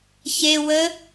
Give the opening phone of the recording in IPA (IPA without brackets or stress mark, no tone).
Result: ç